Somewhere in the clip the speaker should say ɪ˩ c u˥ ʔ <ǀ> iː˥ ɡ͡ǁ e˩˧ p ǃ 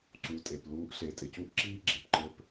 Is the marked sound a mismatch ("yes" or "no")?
yes